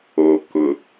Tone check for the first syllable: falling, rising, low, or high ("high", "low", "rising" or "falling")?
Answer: low